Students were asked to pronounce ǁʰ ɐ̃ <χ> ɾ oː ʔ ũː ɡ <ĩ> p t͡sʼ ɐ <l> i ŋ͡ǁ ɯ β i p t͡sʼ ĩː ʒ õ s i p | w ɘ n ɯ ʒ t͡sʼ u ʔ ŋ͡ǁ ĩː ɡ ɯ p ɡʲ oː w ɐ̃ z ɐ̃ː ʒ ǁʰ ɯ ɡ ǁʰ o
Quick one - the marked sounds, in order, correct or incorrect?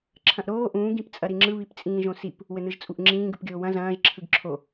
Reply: incorrect, correct, incorrect

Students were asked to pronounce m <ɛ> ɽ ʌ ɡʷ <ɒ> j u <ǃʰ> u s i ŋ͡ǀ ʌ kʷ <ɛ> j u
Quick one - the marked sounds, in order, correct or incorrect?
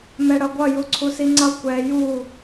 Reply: correct, incorrect, incorrect, correct

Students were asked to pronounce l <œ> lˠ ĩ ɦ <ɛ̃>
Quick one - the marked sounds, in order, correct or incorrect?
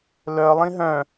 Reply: correct, incorrect

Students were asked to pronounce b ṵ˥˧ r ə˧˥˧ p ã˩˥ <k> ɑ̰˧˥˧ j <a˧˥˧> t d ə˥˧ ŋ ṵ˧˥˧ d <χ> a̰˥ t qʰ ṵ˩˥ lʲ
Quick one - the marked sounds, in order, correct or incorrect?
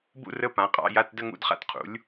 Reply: incorrect, correct, correct

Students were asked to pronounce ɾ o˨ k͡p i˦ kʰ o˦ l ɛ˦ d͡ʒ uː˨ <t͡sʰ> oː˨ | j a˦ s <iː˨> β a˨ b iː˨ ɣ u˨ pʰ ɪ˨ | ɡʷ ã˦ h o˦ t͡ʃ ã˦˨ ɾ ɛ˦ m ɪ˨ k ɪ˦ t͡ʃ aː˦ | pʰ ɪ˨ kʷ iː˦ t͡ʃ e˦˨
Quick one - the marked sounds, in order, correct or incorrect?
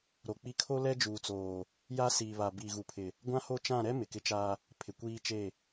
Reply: incorrect, correct

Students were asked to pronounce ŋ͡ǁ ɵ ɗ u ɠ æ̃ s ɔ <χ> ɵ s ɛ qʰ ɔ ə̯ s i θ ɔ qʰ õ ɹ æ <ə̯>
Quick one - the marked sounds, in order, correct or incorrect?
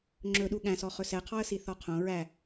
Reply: correct, incorrect

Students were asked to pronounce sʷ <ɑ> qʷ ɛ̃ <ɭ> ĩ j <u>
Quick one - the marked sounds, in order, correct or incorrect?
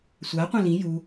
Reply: incorrect, incorrect, correct

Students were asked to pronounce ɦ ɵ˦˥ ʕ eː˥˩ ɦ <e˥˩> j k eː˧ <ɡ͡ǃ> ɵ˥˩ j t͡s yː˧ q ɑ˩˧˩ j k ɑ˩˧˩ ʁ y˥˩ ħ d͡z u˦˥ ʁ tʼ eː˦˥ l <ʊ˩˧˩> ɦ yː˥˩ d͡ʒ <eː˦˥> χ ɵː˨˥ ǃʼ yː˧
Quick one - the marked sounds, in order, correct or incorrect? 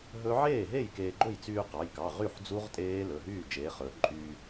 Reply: correct, correct, incorrect, incorrect

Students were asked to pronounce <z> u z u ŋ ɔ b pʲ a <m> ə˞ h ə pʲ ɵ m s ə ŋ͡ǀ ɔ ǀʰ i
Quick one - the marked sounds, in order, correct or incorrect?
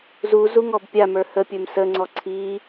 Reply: correct, correct

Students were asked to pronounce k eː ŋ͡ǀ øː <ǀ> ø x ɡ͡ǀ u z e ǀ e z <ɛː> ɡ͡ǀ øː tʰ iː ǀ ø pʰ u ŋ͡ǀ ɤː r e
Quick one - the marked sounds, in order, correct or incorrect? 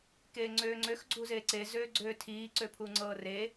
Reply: incorrect, incorrect

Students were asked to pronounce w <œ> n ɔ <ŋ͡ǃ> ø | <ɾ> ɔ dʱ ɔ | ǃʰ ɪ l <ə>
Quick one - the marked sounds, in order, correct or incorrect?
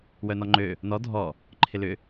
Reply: correct, correct, incorrect, incorrect

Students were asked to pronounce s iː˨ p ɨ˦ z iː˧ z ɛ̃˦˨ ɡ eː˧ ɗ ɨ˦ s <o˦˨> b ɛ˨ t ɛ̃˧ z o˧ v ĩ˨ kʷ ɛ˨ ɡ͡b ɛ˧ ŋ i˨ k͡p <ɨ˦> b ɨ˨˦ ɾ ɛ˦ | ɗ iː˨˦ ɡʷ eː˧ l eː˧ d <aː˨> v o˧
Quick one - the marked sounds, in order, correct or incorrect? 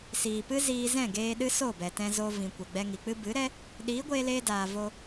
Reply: correct, correct, correct

